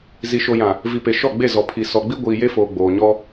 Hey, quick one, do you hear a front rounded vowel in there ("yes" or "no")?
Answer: no